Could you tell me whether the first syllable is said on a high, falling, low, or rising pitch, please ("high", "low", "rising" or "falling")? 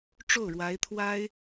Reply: falling